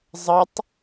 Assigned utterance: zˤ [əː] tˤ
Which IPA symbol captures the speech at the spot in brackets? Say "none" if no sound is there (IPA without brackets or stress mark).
ə